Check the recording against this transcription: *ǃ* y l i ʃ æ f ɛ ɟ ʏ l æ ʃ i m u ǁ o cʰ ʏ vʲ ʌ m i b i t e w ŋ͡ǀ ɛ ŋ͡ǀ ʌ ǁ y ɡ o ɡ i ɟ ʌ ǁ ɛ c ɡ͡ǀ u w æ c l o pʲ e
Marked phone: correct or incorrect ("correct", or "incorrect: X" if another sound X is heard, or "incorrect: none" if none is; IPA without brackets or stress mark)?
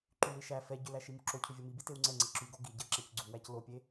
correct